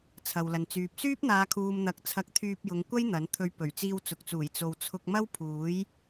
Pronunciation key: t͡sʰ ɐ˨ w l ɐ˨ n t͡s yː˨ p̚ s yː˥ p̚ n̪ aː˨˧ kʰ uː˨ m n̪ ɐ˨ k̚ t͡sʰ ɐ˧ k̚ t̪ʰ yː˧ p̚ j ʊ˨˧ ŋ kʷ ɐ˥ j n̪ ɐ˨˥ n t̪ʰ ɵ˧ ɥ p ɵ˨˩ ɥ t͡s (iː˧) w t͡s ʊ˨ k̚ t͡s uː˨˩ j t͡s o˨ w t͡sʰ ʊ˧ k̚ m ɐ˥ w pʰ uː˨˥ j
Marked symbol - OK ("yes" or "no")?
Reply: yes